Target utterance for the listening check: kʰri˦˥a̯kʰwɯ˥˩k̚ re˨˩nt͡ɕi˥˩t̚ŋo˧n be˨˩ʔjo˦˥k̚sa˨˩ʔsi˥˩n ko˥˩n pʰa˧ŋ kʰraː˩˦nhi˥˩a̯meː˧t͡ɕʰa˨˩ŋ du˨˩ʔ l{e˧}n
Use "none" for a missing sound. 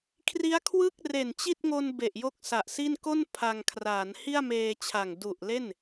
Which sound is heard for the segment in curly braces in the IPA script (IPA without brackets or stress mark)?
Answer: e˥˩